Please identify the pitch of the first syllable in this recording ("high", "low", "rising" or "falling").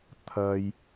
low